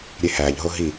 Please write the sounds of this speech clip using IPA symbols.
ɾʲ e h æ ʎ ɦ o ɦ i

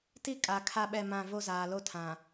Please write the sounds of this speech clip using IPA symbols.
t i˦ kʼ a˨ kʰ a˦ ɓ ɛ˦˨ m ã˦˨ v o˦ z aː˨ l o˦ tʰ ã˨

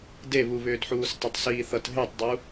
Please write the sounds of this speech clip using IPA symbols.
d e β u β ʏː d ħ uː s tˤ ʏ tˤ s iː θ ʌ t ɦ e tˤ dˤ u

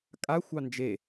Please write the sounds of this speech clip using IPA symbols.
kʼ a xʷ ɑ n d͡ʒ e

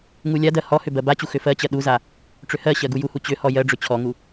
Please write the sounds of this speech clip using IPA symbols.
ŋ u lʲ a d ɜ h ɔ h ʏ b ɜ b a t͡ɕ u x ʏ f ɜ t͡ɕ ɜ ɗ u z a | ʈ͡ʂ ʏ h ɜ ɕ ɜ ɡ u j u h u t͡ɕ ʏ h ɔ j ɜ ɖ͡ʐ ʏ t͡ɕʰ ɔ ŋ u

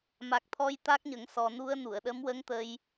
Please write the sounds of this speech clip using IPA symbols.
m a˨˩ k̚ t̪ʰ ɔ˧ j t̪ a˦˥ k̚ ɲ ə˨˩˦ ŋ s ɔ˨˩ n u˧ ə̯ n u˨˩˨ ə̯ ɗ ə˧˥ m w ə˧˥ ŋ t̪ ə˧ j

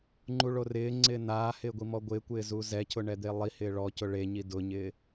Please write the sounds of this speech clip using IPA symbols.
ŋ͡ǃ u ɭ o r ɪː ŋ͡ǀ ɪː n aː h ɪː ɡʷ i m ɔ ɡʷ ɪː kʷ ɪː z u z ɛ cʰ ʊ ɳ ɛ d̪ e lˠ i h ɪː ɭ ɔ c ʊ ɭ e ɲ i d ʊ ɲ ɪː

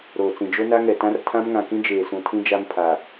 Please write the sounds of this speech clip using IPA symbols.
ɾ oː˨ t͡s ĩ˨ d͡ʒ o˦ n a˦ ŋ ɛ˨ t ã˦ r tʰ ã˦ m ŋ ã˨ k ĩ˦ d͡ʒ eː˨ s ũ˨ tʰ ĩ˦ d͡ʒ a˦ m pʰ a˨

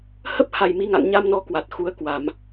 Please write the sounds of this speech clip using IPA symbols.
h ə˦˥ p̚ h a˨˩ j m i˨˦ ŋ a̰˧˨ ŋ ɲ a˧ m n ɔ˨˦ k w a˨˩ t̚ x u˨˦ ə̯ k w a˧˩˨ m

